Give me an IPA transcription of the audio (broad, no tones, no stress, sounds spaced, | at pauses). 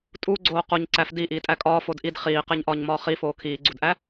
tʼ u ɡ͡ǀ oː q o ɲ ǀ æ f d i ʔ iː tʼ æ kʼ ɒː f o d ʔ i d χ iː q e ɲ ʔ ɒː ɲ m ɒː χ i f oː kʰ iː ɡ͡ǀ u d ʔ æ